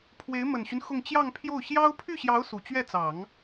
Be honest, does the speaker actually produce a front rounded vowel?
yes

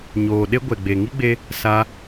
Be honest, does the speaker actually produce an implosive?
yes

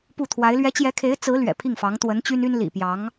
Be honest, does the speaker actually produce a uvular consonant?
no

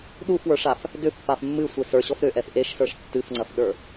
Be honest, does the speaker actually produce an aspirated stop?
no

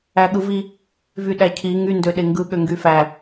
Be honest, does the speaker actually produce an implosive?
yes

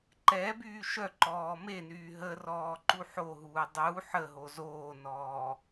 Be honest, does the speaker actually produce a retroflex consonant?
no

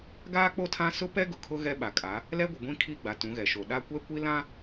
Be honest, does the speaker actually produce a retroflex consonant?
no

